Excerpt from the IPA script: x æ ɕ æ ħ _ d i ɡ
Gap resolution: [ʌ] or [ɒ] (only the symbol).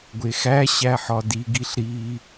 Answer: ɒ